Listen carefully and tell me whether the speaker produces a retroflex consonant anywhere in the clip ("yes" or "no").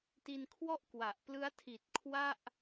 no